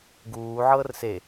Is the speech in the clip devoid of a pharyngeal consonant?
no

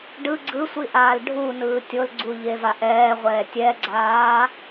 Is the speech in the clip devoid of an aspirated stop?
yes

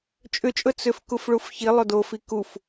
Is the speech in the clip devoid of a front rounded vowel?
no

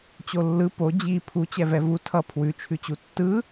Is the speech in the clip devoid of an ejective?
yes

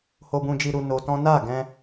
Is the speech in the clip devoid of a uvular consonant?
yes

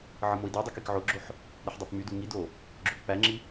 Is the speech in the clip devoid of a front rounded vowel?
no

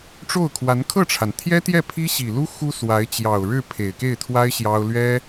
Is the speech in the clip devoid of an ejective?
yes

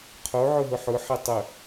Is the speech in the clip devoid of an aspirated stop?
no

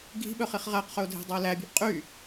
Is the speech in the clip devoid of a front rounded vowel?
no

